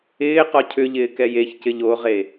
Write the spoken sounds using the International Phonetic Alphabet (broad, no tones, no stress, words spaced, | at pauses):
ɪː qɔcʰʏʎɪː kɛjeçcɪʎ oʁe